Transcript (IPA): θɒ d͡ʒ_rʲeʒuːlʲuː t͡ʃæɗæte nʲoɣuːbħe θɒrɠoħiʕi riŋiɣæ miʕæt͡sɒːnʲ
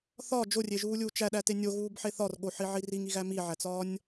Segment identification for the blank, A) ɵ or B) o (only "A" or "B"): B